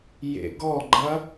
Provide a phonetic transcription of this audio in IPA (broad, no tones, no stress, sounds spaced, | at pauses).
j ḛ ɡ ɔ ɡ͡ǃ ɐ